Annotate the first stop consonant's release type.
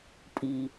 ejective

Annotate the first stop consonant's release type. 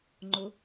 click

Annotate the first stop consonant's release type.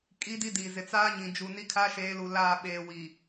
ejective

